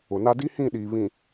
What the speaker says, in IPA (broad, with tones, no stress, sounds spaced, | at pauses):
ʊ˨ n a˦ d i˦ h ĩ˦˨ ɗ iː˨ β ĩ˨